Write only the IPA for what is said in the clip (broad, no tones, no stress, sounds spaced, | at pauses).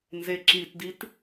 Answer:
n z e ǁ i t d i t